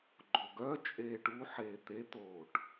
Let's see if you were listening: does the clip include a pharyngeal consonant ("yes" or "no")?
yes